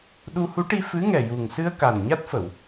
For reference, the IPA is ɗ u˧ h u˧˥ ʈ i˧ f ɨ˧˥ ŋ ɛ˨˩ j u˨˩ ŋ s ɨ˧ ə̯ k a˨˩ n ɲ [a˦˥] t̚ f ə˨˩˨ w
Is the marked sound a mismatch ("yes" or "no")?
no